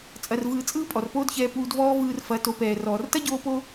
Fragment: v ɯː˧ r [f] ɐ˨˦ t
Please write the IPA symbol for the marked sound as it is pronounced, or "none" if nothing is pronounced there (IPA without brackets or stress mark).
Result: f